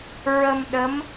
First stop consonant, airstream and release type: implosive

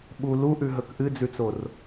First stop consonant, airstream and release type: implosive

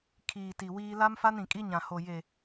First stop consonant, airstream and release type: aspirated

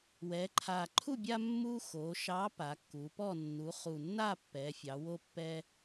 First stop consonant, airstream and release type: click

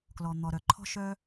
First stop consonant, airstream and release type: plain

